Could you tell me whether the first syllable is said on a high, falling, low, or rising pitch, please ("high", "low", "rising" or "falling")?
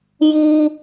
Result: low